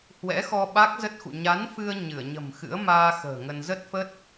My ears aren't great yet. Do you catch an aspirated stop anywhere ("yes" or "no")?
no